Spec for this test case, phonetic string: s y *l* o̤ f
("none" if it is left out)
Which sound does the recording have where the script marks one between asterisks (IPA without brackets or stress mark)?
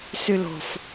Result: l